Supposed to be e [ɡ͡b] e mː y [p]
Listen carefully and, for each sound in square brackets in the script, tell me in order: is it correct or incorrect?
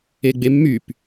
correct, correct

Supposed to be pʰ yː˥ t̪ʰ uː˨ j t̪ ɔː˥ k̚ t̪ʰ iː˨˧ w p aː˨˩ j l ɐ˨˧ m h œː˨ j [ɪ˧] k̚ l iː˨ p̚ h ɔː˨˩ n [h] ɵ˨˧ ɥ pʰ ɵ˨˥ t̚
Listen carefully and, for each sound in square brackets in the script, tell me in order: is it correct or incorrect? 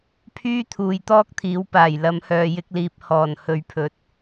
correct, correct

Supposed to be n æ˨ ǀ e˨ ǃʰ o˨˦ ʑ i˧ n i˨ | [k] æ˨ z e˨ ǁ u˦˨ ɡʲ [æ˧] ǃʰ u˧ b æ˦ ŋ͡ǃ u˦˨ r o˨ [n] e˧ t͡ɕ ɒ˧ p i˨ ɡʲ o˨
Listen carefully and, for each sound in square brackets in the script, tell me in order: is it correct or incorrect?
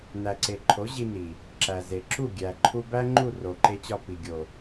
incorrect: ǁ, incorrect: æ˨, incorrect: ǃ

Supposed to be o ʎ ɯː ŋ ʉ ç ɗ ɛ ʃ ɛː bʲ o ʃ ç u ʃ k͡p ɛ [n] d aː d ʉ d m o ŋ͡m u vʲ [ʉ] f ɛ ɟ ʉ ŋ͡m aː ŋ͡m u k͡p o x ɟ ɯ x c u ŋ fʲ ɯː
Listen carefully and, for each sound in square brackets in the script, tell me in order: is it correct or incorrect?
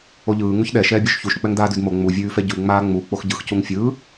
incorrect: ŋ, incorrect: ʉː

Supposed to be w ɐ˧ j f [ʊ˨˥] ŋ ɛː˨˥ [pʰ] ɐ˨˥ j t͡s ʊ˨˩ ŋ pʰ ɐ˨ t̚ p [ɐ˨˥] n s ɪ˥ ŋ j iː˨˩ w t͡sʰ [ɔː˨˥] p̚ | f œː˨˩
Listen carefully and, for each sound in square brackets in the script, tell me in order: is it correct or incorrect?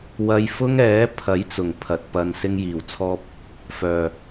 incorrect: ʊ˥, correct, incorrect: ɐ˧, incorrect: ɔː˥

